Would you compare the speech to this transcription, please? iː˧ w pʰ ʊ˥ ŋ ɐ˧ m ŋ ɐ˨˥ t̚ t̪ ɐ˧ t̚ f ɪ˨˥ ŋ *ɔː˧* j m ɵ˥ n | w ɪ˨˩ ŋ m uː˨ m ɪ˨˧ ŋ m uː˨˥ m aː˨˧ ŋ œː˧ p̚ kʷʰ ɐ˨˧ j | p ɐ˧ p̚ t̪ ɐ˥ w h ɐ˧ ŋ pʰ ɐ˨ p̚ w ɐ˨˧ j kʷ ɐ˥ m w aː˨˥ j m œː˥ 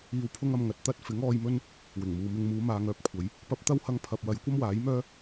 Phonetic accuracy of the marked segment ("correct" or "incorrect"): correct